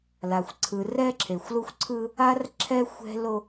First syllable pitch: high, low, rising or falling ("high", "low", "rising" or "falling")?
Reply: low